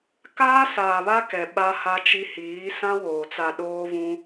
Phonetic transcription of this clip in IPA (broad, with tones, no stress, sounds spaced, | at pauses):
k aː˦ s aː˨ β a˦ k ɛ˨ ɓ a˦ h a˦ t͡ʃ i˦ h iː˨˦ s ã˦ w oː˨ t͡s a˨ ɗ oː˦ v ũ˦